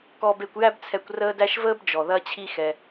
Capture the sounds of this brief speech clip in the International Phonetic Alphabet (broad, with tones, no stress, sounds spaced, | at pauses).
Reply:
k ɔ˨ b e˨ kʷ j æ˦ b t͡sʰ ɛ˨ kʷ r əː˦ d æ˦ ʃ v əː˥ b d͡ʒ ɔ˩ ð ɐ˦ t͡ɕʰ i˦ x ɛ˨